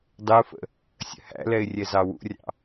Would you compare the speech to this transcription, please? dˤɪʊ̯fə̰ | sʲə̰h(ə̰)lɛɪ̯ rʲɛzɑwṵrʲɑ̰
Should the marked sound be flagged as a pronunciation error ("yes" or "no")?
yes